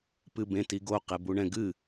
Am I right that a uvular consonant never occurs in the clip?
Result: no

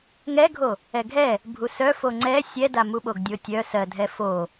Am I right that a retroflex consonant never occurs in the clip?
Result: yes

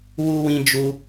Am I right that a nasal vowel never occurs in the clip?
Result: no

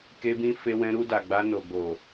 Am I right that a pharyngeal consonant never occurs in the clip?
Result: yes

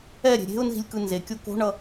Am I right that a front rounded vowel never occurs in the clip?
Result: yes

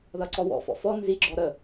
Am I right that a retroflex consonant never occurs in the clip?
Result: yes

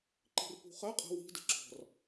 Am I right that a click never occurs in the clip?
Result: no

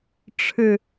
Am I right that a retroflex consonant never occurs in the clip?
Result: no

